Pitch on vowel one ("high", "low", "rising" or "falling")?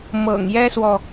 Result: low